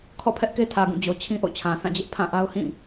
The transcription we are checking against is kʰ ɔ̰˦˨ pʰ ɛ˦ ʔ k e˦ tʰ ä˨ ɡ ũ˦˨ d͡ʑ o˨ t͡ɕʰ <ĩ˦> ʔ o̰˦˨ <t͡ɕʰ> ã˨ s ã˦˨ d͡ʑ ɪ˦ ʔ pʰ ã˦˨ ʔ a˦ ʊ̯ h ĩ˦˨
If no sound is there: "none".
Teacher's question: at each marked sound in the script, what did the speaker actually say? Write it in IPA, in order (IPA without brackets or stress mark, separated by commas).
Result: ĩ˦, t͡ɕʰ